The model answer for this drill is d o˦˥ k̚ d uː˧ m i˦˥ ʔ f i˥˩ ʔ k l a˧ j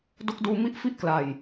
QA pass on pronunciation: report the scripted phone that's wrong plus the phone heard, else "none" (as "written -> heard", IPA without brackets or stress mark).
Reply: none